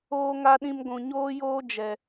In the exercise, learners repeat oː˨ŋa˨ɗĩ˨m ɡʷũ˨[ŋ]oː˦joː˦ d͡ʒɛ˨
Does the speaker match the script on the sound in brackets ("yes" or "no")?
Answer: no